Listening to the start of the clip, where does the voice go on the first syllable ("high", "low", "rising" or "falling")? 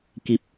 low